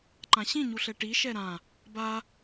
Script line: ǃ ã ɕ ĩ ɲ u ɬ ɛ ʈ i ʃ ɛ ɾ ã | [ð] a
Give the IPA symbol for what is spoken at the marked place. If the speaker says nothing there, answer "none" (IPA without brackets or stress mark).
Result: b